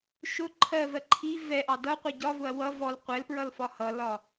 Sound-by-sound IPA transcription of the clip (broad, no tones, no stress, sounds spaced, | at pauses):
ʃ ʊ ǃʰ ɜ v ɜ ǃʰ i v ɛ ʔ ɑ d ʌ qʷ i ɟ ɒ v ʊ ɐ̯ w ʌ v ɔ l qʷ ɛ l p ɹ ʌ l f ɒ h ʌ l ɒ